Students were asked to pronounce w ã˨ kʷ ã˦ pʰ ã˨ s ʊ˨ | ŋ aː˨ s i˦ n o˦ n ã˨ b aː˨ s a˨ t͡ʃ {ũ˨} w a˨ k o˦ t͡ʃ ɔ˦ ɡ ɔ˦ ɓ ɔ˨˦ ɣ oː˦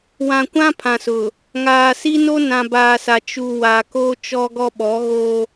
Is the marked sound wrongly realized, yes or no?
yes